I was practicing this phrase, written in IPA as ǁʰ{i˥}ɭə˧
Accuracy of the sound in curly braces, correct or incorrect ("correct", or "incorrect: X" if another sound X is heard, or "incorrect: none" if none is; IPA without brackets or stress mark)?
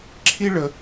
correct